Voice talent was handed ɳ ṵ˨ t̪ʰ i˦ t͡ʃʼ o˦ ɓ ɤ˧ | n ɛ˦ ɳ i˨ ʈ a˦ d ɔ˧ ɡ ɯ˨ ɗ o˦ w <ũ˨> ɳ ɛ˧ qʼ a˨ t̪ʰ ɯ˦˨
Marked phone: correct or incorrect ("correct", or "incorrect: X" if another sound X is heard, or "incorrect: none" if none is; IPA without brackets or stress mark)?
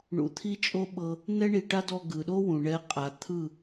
correct